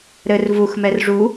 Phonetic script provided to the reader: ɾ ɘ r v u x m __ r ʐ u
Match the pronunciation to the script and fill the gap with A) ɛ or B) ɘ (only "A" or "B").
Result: A